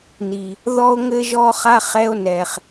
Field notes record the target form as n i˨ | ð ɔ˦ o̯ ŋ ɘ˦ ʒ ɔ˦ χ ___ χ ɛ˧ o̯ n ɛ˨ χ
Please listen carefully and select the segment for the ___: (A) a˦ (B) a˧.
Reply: A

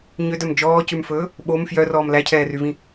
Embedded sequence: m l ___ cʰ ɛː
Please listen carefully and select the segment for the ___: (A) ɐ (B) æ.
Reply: B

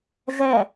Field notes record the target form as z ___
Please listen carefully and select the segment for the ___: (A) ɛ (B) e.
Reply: A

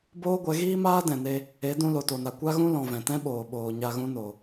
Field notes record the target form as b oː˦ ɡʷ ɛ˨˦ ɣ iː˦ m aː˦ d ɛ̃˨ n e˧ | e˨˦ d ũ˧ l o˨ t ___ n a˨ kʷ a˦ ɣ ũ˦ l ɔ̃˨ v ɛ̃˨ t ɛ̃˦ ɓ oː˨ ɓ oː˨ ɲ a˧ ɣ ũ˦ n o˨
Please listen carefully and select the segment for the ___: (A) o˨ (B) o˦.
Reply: A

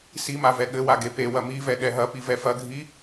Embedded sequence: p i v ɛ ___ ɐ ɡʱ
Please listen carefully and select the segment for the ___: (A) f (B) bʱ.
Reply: A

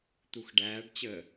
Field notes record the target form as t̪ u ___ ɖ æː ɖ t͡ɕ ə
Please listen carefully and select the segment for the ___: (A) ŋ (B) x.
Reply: B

